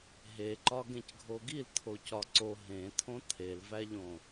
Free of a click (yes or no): no